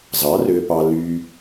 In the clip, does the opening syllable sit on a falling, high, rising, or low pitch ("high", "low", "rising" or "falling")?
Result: rising